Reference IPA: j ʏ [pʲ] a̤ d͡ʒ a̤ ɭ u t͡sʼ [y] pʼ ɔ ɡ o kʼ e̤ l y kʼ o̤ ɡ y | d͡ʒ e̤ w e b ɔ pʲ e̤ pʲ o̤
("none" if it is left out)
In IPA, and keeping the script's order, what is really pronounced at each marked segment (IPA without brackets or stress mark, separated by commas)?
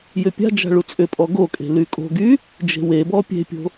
pʲ, ʏ